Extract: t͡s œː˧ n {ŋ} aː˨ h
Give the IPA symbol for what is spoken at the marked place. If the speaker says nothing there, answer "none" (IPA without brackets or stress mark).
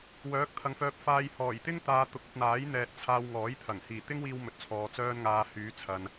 ŋ